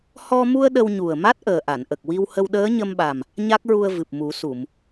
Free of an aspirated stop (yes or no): yes